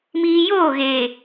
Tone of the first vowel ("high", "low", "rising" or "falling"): low